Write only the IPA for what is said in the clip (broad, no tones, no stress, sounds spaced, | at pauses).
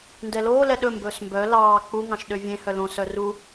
n d ɛ l oː l ɛ ɗ ɵ m b ɵː s m b œ l ɑː k͡p u ŋ ɑ̃ ʃ ɗ ø vʲ ẽ h œ l õ s œ r u